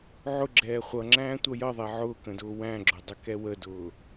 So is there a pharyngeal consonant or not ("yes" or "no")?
yes